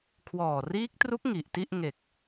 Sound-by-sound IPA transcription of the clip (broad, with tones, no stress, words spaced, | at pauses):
kʰwɔː˨˩riː˦˥k̚tru˦˥k̚ ŋi˨˩ʔti˥˩ʔ ŋe˨˩k̚